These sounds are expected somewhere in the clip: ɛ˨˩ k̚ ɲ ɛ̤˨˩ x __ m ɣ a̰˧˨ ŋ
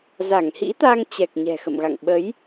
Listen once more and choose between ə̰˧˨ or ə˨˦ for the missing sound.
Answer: ə̰˧˨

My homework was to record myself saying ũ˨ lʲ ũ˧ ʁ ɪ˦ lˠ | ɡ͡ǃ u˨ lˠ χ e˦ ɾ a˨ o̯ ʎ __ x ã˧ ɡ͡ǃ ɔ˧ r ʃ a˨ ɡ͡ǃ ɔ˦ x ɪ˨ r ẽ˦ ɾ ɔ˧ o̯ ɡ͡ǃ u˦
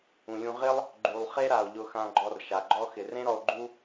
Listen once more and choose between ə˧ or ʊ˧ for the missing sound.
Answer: ʊ˧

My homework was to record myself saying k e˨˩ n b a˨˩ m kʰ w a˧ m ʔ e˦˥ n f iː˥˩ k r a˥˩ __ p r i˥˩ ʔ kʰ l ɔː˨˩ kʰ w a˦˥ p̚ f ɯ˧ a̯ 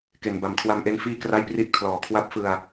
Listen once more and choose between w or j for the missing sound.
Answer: j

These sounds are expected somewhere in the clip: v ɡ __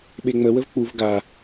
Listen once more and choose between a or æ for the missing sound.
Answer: a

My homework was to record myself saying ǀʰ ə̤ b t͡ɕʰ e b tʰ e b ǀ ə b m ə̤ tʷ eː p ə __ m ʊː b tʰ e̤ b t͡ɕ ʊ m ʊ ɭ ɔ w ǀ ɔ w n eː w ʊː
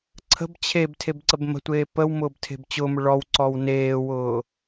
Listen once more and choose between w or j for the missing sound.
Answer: w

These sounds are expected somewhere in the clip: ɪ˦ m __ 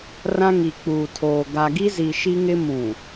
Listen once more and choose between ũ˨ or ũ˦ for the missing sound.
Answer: ũ˨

